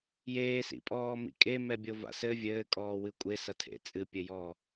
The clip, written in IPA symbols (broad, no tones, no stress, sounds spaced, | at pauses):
j eː s ḭ pʼ ɔː m ḭ kʼ e m ɛ bʲ o v a̰ s ɘ vʲ ɘː kʼ ɔː w ɨ kʷʼ e s ɐ tʰ ḛ t͡sʼ ɨ pʲ ɘ j ɔː